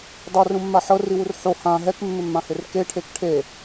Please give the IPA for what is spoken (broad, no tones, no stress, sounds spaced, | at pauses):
dˤ a r ũ mː a ħ ɤ r i w u r ħ o h ã ɦ ɛ k mː ɪ mː ã h ɪ r k e ʈʰ e k ʈʰ e